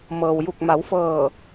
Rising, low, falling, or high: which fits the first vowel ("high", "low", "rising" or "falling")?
low